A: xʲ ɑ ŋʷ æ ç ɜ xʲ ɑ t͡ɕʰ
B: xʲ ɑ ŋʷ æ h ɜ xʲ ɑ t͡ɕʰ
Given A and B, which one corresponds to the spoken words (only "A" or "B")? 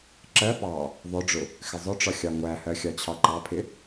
B